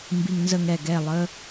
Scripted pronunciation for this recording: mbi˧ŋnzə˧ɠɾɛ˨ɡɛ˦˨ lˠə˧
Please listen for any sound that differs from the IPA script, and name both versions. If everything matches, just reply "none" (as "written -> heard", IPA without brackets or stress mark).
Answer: ɠ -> ŋ